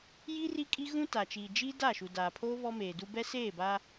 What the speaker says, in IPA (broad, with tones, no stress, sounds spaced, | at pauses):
j i˦ r i˦ kʼ i˦ ɣ ũ˦ t a˨ t͡ʃ iː˨ d͡ʒ i˦ d a˦˨ ʃ u˨ d aː˨ pʰ oː˦ β ɔ˦ m eː˨ d u˦ b ɛ˦ s eː˦˨ b a˦